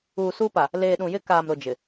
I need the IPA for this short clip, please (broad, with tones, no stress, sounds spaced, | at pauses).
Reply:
uː˨ s uː˦ p a˨ | l eː˨ ɗ ũ˨ j ɪ˦ k aː˨ m ɾ ʊ˨ d͡ʒ ɪ˨